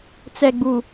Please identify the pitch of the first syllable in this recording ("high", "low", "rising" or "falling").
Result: low